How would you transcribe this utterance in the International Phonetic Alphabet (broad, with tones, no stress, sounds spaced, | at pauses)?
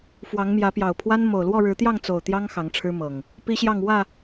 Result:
f w ɑ˨˦ ŋ m j ä˨˦ p j ɑ˨˩ ʊ̯ pʰ w a˦ n m o˨˩ ʊ̯ l w ɔ˥˨ ɻ ɻ̩˨˦ t̪ j ɑ˥˨ ŋ t͡s o˨˩ ʊ̯ t̪ j ɑ˦ ŋ x ɑ˨˦ ŋ ʈ͡ʂʰ ɻ̩˦ m ɤ˨˩ ŋ | p i˦ ɕ j ɑ˥˨ ŋ w ä˥˨